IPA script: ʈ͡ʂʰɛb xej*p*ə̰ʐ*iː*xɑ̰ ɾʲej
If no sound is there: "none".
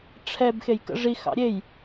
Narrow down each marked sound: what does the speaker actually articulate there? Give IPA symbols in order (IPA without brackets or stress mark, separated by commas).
k, i